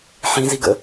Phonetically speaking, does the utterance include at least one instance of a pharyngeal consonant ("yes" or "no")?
yes